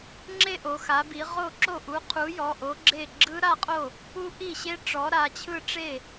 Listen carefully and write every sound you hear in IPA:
ŋ͡ǁe˥˧ʔo˩˧ xa˩˧bi˩˧ ʁo˥˩ǁo˥˩ ʔu˨˥qʰu˨˥ jɔ˩˧˩ʔo˨˥ɡ͡ǁe˥˩ ɡ͡ǁɯ˦˥ɾa˥˧qʼo˥˩ | ku˦˥ ʔi˥˩ɕe˦˥ ʈ͡ʂɔ˨˥ɾa˩˧˩t͡ɕʰɯ˥˧ʈ͡ʂe˥˩

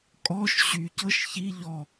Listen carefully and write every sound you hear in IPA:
kʼɔʃ ɕycɤʃ çi ʎɔ

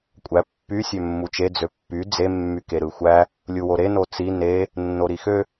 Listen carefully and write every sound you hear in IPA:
kʷʼæ pːy sʲømːut͡ʃe d͡zøpːy d͡ze mːykeɾɯxʷæ | lʲuwoɾe not͡si ne | nːoɾixø

